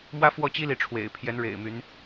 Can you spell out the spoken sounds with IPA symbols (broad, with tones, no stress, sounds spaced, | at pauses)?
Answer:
m w ä˥ f w ɔ˥˩ t͡ɕ i˥ l i˧˥ ʈ͡ʂʰ w ḛ˨˩ ɪ̯ pʰ j ɛ˧˥ n ɻ ḛ˨˩ ɪ̯ m y˧˥ n